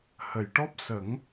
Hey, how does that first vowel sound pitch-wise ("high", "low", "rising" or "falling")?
low